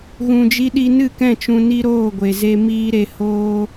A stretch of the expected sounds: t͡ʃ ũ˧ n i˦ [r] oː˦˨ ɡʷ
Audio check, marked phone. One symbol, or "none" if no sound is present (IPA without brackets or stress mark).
ɾ